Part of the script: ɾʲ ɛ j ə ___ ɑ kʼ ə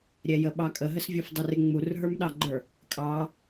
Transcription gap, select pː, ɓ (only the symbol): ɓ